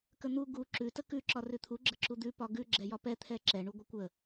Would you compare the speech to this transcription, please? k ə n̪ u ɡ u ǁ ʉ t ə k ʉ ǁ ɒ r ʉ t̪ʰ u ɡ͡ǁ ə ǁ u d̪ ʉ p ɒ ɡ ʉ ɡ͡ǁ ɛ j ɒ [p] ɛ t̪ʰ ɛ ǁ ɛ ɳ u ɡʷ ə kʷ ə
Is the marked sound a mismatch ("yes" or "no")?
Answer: no